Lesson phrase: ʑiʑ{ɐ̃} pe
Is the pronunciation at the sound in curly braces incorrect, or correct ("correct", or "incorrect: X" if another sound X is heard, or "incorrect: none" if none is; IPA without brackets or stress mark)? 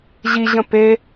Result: incorrect: ə̃